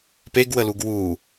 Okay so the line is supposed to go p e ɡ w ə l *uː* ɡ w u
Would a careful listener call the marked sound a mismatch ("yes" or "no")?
yes